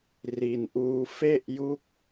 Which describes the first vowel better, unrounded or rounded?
unrounded